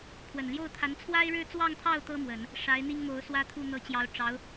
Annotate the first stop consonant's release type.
aspirated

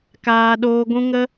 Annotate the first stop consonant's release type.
plain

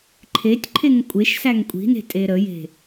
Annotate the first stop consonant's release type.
click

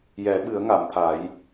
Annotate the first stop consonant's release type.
implosive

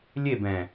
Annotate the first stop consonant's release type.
plain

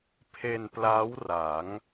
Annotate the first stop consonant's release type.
aspirated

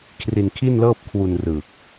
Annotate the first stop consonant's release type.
aspirated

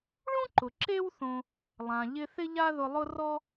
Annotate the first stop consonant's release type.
click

